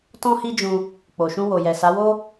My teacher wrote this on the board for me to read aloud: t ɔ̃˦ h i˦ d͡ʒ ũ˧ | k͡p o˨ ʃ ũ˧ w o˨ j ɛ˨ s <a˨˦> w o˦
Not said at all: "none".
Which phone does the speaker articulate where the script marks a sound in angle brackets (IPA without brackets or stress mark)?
a˨˦